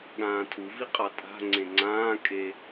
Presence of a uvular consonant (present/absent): present